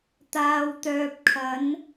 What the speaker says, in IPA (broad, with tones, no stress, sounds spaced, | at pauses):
t̪ aː˨ w t̪ œː˨ p̚ kʰ ɐ˨˧ n